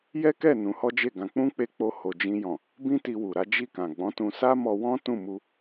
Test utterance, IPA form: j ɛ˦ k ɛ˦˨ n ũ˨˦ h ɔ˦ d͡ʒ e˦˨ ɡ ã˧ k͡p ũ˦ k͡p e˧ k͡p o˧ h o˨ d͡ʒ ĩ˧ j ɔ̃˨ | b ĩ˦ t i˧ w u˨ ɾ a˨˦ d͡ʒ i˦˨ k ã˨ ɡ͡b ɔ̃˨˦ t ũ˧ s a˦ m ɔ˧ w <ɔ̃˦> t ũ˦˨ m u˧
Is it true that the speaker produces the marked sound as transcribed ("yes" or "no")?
yes